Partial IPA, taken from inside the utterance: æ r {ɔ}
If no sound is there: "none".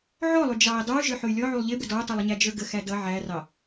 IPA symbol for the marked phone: ɑ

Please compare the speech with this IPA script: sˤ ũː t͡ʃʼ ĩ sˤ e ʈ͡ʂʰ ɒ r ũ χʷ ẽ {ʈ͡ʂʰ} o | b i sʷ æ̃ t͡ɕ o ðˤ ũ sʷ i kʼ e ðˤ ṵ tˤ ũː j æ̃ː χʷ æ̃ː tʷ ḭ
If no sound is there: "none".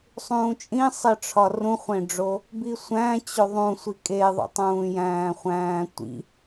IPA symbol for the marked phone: ɖ͡ʐ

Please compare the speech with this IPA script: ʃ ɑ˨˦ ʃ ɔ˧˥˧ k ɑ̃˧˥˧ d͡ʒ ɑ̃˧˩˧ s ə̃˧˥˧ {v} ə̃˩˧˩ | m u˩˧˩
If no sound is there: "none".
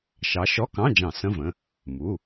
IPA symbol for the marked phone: v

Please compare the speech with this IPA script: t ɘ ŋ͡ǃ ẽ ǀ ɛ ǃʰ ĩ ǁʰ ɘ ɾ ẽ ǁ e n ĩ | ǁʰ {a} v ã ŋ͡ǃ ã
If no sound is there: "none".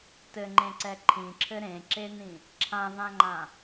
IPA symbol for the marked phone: ã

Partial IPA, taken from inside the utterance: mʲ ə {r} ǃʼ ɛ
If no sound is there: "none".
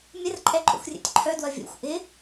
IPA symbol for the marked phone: r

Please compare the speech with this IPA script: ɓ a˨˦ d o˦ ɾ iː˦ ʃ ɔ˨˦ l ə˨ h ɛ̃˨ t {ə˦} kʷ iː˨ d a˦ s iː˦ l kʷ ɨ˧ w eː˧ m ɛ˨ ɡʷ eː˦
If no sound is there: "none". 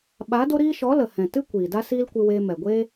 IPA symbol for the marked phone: ɨ˦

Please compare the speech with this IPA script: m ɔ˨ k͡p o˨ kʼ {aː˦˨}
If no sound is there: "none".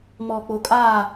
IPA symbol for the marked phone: aː˦˨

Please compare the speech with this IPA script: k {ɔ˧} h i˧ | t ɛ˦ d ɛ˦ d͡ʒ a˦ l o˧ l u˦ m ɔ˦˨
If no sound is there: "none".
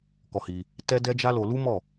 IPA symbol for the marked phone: ɔ˧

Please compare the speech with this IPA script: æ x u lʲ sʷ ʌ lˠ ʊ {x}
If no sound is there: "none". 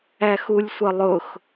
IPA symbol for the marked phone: x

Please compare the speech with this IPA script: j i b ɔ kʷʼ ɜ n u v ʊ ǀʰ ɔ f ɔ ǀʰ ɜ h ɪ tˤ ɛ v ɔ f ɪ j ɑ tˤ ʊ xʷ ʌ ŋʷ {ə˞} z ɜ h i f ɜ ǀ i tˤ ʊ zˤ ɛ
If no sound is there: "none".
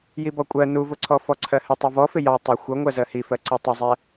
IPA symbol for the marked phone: ɜ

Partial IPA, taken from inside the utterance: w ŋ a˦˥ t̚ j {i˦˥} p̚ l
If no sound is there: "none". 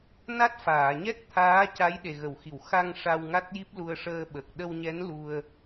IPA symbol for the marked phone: i˦˥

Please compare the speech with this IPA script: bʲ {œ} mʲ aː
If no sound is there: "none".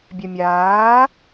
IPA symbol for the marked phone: œ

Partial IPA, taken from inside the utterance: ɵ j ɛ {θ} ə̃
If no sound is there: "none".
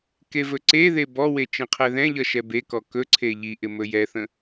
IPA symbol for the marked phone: θ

